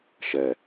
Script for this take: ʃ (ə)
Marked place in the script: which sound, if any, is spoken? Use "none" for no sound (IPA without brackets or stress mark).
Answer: ɛ